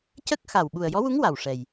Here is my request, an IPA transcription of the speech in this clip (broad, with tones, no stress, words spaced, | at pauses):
cə˦˥k̚xa˨˩w ɓu˨˩ə̯jɔ˧˥wu˧˥ŋ wa˨˩wʂɛ˨˩j